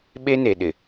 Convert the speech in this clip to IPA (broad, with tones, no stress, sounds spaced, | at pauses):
ɓ e˦ n e˨ ɗ ɪ˨